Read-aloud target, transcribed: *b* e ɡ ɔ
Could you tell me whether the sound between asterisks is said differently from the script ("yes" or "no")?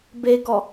no